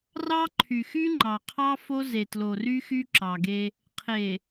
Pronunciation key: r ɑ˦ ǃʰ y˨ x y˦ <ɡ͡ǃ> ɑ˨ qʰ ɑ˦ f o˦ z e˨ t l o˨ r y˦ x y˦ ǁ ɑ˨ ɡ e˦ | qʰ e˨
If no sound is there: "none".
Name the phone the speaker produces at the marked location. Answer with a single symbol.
ŋ͡ǃ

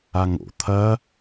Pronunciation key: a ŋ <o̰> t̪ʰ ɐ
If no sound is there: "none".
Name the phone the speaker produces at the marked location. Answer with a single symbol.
o̰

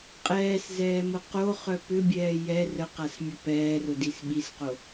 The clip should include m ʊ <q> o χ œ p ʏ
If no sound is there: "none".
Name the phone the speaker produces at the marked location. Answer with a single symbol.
q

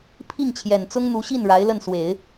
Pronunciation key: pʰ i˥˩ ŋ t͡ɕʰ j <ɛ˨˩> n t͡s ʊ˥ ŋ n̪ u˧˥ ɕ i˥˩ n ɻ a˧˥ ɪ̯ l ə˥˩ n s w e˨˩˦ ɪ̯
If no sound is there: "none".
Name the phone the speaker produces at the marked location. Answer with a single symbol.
ɛ˨˩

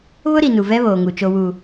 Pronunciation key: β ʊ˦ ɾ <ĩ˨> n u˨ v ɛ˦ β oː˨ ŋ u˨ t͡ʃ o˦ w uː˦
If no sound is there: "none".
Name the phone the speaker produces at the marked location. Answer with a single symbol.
i˨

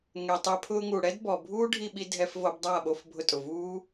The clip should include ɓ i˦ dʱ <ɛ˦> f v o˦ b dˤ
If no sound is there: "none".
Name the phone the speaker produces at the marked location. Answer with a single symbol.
ɛ˦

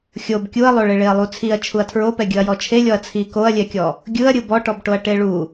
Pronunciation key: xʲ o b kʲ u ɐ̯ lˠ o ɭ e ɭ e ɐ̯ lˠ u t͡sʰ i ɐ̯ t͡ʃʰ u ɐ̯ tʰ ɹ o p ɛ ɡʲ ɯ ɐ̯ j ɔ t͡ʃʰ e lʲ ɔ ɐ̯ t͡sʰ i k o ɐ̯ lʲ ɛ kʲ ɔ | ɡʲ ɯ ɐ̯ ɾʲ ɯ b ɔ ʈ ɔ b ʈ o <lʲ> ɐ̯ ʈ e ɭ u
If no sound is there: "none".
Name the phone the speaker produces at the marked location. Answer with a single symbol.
none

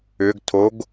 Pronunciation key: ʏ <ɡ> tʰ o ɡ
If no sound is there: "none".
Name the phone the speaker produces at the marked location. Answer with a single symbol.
ɡ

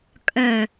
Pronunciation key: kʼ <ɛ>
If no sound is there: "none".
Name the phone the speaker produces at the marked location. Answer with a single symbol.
œ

